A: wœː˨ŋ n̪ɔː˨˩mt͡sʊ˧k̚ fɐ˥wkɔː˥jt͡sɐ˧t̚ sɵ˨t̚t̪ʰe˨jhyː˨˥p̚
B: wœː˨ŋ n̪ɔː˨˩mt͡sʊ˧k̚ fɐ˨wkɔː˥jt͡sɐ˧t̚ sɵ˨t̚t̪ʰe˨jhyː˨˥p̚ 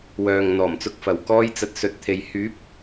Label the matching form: B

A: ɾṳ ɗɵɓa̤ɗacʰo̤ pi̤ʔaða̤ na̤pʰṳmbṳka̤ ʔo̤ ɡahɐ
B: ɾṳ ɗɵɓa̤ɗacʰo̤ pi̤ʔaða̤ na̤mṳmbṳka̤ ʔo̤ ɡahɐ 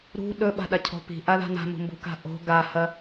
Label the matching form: B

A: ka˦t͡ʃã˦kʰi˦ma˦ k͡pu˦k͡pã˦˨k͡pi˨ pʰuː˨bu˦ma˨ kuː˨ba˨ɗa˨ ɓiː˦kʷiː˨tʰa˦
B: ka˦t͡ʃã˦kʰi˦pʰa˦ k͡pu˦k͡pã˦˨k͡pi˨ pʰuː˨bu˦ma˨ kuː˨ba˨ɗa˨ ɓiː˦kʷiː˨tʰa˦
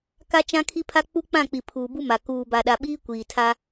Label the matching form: B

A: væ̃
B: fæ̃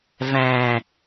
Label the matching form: A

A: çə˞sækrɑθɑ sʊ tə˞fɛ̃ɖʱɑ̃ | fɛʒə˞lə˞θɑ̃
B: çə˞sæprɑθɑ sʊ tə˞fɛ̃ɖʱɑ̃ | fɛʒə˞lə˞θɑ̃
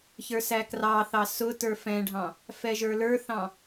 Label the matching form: A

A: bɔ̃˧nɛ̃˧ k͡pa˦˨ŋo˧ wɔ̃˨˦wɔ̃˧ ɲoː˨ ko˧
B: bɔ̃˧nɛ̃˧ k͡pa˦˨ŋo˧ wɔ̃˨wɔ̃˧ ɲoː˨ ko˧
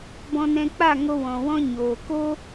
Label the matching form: B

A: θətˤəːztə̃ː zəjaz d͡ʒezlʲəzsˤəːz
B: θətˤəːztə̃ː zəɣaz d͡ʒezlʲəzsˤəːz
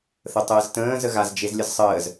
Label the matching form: B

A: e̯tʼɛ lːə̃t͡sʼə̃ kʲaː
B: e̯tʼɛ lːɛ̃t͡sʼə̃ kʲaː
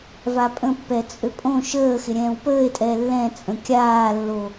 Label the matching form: B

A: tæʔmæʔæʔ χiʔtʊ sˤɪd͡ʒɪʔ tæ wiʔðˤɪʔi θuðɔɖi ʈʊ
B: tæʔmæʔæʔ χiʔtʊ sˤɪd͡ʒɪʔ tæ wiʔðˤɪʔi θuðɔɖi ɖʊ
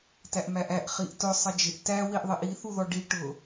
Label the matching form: A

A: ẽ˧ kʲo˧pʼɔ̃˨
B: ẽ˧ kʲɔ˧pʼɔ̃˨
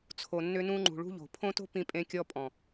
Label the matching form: B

